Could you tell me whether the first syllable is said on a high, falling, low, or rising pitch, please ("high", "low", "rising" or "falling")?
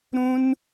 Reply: high